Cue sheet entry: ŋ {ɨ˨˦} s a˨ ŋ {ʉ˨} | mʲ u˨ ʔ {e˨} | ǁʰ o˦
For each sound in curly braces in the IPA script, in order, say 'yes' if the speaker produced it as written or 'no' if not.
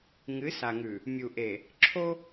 yes, yes, yes

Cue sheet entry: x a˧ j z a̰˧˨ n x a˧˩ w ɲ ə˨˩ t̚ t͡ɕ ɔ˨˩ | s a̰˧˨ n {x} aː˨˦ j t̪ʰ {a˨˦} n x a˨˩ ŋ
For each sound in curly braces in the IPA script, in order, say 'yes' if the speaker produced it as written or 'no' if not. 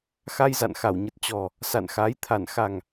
yes, no

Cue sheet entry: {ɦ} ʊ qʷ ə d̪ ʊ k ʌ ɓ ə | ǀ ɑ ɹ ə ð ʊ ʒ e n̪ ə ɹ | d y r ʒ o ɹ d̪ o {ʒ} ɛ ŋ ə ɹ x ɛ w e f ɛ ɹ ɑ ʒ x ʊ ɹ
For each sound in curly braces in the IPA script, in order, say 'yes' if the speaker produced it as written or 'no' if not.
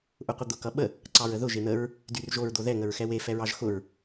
no, no

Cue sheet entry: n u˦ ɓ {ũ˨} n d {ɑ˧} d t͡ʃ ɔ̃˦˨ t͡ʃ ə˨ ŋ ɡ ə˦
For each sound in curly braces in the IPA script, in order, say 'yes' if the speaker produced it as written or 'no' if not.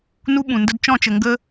yes, no

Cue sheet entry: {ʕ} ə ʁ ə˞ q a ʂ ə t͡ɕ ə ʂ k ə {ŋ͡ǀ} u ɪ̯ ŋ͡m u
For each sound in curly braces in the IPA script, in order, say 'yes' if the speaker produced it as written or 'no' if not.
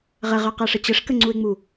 no, yes

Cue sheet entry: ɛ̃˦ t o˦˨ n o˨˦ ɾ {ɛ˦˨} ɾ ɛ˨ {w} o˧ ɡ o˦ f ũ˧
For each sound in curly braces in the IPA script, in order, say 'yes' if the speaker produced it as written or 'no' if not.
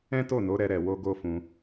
no, yes

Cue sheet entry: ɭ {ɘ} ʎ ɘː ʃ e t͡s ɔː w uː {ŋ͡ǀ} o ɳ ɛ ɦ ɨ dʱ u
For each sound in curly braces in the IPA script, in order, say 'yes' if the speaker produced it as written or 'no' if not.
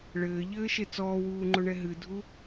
no, no

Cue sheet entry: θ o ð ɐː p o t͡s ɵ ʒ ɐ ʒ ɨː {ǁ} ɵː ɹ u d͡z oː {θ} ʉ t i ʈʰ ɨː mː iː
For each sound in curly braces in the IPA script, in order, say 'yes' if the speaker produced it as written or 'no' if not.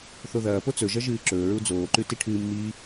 yes, no

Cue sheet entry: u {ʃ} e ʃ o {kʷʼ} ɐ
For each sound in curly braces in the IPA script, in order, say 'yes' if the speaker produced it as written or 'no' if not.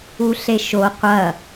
no, no

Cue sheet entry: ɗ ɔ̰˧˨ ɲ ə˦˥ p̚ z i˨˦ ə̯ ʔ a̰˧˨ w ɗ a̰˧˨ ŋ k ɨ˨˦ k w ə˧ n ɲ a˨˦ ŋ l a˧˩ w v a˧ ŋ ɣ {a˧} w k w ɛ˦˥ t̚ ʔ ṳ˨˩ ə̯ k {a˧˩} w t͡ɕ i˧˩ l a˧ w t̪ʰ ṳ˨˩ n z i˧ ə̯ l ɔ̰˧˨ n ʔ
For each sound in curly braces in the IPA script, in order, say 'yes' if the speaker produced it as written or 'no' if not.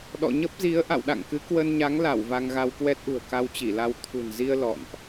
yes, no

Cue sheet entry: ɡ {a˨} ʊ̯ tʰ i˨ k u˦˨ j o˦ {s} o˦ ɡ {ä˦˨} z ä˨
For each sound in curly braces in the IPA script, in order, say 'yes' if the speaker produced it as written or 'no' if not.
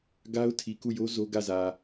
no, no, yes

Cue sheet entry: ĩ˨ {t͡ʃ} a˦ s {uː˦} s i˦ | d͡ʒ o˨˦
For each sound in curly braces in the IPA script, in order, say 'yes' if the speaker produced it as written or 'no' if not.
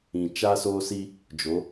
yes, no

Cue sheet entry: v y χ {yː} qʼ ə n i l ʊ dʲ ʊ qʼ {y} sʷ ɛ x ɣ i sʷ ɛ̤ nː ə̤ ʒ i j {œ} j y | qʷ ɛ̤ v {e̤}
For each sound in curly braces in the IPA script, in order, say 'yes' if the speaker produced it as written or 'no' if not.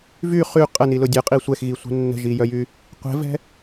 no, no, yes, no

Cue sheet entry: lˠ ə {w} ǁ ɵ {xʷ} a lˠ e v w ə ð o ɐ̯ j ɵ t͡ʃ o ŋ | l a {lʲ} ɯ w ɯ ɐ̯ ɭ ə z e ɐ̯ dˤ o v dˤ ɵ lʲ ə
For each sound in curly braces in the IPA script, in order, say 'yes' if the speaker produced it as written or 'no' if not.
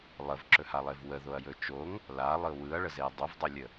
no, no, no

